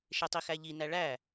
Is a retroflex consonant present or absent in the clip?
present